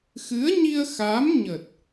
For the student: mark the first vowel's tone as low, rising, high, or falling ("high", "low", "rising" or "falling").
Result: rising